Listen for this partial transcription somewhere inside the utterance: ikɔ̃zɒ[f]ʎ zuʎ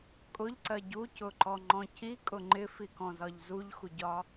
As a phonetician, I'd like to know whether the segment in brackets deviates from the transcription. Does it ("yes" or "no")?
yes